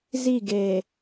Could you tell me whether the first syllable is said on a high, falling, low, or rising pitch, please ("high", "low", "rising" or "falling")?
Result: falling